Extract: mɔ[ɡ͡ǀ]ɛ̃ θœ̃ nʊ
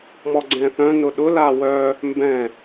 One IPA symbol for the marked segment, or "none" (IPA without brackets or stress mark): ɡ͡ǀ